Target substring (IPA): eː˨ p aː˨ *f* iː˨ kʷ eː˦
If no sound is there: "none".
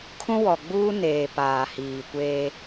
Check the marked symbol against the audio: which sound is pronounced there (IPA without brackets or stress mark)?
h